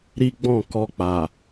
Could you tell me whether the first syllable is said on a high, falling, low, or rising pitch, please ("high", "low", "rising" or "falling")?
high